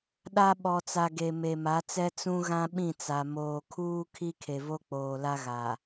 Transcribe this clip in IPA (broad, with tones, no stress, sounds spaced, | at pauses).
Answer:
ɗ a˦ ɓ ɔ˨ t͡s a˨ ɡ e˨ m e˨ m a˨˦ t͡s ɛ˦ t͡s ũ˦ ɣ ã˦ ɓ ĩ˦˨ t͡s a˨ m oː˨ kʰ uː˦ kʰ i˦ kʰ e˨ v o˦ k͡p oː˨ l a˦ ɣ a˨